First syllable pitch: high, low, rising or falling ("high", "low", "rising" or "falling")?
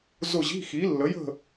falling